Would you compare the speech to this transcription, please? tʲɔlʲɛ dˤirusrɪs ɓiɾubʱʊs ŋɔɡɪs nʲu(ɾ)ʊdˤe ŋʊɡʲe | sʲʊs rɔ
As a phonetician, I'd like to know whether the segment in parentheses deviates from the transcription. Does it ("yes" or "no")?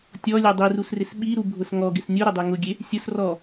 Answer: no